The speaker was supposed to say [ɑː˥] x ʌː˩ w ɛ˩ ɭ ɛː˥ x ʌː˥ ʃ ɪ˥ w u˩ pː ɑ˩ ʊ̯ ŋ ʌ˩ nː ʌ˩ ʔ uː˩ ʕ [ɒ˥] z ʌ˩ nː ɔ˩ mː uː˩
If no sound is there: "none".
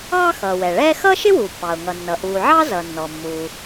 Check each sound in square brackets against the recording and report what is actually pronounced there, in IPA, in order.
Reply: ɑː˥, ɑ˥

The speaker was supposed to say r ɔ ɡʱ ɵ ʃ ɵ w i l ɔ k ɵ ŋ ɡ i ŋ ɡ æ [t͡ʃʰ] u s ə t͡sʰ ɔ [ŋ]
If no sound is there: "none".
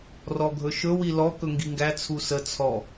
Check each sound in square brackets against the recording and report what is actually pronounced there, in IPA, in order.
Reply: t͡sʰ, none

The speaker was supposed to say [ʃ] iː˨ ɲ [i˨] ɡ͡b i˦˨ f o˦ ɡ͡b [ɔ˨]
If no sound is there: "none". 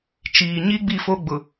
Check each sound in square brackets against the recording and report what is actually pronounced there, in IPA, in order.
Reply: t͡ʃ, i˦, ʊ˨

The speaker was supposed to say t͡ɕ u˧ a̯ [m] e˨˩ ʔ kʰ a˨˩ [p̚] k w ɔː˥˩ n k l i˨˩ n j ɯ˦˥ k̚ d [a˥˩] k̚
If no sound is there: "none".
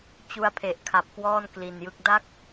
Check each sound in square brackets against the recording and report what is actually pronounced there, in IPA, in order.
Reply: pʰ, p̚, a˥˩

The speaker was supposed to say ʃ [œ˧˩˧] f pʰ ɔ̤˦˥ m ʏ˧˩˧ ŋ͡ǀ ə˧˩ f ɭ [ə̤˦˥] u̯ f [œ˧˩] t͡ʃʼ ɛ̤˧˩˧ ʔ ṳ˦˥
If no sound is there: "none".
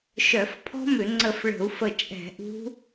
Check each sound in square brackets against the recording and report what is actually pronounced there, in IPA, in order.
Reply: œ˧˩˧, ə̤˧˩˧, ə˧˩

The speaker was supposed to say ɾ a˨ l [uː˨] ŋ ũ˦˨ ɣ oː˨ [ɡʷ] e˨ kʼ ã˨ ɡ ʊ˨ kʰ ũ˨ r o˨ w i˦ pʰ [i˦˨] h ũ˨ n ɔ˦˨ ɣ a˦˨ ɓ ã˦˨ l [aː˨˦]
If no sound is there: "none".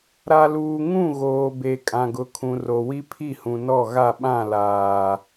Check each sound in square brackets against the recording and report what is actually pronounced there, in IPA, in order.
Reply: uː˨, b, i˦˨, aː˨

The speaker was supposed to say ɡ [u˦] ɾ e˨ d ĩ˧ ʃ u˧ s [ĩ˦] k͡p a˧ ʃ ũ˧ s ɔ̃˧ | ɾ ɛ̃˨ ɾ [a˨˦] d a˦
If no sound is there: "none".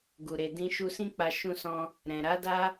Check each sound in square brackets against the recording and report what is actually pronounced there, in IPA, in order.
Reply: u˨, ĩ˦, a˨˦

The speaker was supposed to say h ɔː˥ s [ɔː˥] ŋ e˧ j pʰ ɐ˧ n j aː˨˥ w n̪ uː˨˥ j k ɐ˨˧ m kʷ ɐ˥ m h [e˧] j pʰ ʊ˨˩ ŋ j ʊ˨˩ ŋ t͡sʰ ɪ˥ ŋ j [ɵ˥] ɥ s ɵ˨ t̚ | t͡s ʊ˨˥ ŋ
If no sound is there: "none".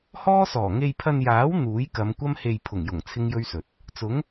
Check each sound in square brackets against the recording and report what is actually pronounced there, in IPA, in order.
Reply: ɔː˨˩, e˧, ɵ˥

